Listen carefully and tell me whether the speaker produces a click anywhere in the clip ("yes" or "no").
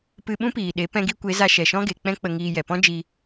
no